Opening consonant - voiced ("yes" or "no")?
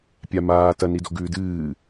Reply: no